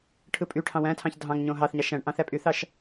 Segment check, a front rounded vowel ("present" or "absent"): present